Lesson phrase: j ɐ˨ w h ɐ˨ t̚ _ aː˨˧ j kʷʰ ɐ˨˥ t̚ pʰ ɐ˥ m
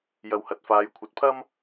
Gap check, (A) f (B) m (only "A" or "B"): A